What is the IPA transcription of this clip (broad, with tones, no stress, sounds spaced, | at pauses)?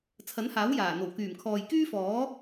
t͡sʰ ɐ˨˥ n h aː˨˥ w j aː˨˩ n̪ o˨˩ w k yː˨˩ m kʰ ɔː˨ j k yː˥ f ɔː˨˥